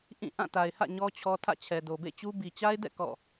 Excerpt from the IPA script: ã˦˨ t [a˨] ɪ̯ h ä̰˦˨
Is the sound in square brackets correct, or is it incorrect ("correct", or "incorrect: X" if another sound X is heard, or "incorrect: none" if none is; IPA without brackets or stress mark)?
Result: correct